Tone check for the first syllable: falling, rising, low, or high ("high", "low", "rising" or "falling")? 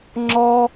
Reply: high